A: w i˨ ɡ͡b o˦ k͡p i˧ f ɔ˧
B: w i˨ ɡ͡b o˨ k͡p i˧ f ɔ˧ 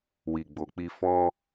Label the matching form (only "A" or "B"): B